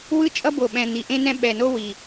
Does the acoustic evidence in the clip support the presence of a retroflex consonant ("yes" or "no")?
no